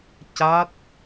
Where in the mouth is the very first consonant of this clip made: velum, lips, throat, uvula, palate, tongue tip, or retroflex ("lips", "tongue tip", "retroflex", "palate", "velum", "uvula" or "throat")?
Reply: palate